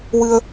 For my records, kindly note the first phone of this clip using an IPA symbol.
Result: w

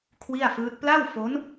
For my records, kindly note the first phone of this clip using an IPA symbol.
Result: kʰ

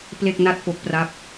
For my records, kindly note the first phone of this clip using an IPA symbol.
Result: p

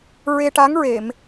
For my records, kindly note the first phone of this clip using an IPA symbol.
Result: ɹ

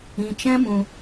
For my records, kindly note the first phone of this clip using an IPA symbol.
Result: ĩ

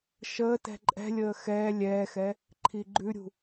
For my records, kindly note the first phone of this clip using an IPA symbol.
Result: ʃ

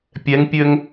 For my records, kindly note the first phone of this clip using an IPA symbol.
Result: pʲ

